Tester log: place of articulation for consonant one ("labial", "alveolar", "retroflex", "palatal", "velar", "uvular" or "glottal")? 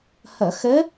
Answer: glottal